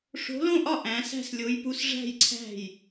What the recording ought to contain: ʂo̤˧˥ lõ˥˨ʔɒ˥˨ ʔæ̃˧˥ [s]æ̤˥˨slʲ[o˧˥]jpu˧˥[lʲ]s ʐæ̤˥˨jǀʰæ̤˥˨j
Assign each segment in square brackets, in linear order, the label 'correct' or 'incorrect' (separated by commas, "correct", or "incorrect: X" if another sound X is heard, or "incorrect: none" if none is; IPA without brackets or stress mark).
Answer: correct, correct, incorrect: none